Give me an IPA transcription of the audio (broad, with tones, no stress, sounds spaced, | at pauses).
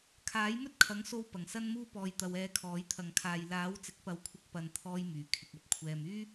kʰ aː˨˥ j m ɵ˥ t̚ kʰ ɐ˨˥ ŋ s o˧ w p ɐ˨˩ ŋ s ɐ˥ n m uː˥ p ɔː˧ j t̪ ɐ˧ w ɛː˧ kʰ ɔː˨˥ j t̪ʰ ɐ˨ ŋ kʰ aː˨ j l aː˨˥ w t͡s ɪ˨˥ k̚ p ɐ˨˥ w kʷʰ ɪ˨˥ k̚ p ɐ˨ n t̪ʰ ɔː˧ j m yː˨˩ kʰ ɪ˨ k̚ ɐ˥ p̚ kʷʰ ɛː˧ m yː˥